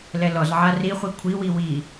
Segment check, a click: absent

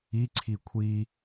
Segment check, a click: present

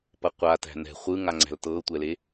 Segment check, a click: present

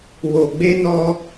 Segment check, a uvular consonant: absent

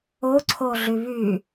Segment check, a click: present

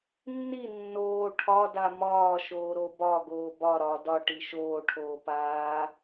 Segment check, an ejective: absent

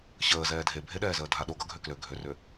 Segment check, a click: absent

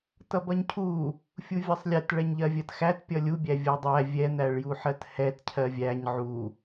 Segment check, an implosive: absent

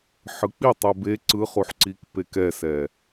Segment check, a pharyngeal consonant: present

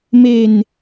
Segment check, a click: absent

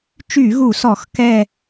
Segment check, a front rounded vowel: present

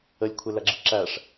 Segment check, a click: present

